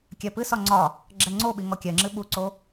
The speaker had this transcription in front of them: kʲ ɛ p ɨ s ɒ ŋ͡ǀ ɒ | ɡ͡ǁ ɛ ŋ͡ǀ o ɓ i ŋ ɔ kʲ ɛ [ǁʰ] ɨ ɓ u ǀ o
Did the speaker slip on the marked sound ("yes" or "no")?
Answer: yes